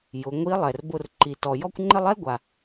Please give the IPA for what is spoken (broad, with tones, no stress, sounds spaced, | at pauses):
j ʊ˩˧ ŋʷ i˧˥ lˠ ɛ˩ r b ʊ˧ r ǃ i˩ t ɔ˩ j ɔ˥ kʷ ŋ͡ǃ ɪ˥ lˠ ɛ˥ ɡʷ a˩